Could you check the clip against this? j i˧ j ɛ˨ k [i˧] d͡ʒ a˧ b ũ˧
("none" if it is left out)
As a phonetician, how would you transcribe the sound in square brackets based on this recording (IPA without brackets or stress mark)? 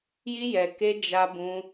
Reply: e˧